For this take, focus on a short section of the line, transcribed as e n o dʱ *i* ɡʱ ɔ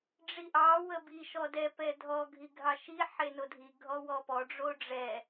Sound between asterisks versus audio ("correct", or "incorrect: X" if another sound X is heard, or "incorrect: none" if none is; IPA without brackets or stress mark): correct